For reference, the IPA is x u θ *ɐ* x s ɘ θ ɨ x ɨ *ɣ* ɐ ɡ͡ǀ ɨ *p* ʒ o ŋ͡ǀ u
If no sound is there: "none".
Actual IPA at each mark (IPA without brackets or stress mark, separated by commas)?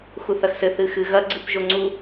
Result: ɐ, ɣ, p